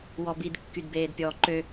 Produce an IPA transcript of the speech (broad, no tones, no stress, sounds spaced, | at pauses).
w ɔ b i d kː y d b eː d pʲ ɔː ǃ ø